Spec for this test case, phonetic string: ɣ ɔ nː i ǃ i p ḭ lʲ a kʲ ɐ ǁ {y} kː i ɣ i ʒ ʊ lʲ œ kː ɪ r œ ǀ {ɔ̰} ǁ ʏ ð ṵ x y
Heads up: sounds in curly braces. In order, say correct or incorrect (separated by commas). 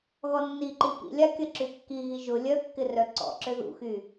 correct, correct